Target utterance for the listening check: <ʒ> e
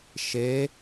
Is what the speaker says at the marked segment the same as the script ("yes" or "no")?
no